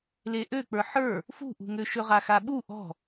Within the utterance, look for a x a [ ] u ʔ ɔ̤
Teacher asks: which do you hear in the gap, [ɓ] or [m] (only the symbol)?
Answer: ɓ